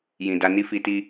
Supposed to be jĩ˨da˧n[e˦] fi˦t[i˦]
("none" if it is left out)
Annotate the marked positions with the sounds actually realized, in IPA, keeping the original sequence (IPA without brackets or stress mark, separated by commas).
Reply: i˦, i˦